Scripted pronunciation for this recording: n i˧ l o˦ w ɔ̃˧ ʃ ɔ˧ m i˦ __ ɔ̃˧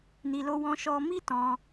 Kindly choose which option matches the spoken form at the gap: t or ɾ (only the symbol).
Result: t